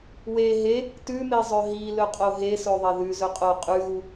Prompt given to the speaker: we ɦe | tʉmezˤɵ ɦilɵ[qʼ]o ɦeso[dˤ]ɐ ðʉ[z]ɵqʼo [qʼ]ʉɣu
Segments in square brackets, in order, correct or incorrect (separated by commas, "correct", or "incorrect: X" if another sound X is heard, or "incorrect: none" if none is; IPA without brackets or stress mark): correct, incorrect: ðˤ, correct, correct